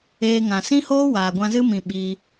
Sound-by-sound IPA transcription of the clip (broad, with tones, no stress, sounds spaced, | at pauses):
eː˧ ŋ ã˨ s ĩ˦ h oː˦ w aː˨ ɡʷ ã˧ z ɨ˦ m ĩ˧ ɓ i˧